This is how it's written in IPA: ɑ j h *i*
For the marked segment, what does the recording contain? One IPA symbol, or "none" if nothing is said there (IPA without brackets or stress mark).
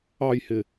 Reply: ɪ